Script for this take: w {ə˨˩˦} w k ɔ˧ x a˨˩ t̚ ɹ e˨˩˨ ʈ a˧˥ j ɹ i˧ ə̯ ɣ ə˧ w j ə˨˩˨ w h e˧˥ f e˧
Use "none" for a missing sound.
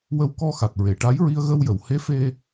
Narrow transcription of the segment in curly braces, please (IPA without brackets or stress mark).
ə˧